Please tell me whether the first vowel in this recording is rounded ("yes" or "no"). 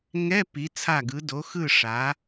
no